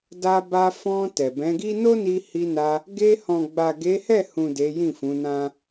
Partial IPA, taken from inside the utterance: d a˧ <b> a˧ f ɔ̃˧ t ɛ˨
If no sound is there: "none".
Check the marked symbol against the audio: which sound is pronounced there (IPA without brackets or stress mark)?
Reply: b